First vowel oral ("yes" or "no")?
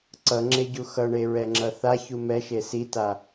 yes